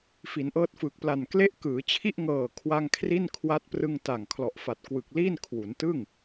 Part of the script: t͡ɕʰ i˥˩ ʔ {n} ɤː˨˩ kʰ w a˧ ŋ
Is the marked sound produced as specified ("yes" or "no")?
no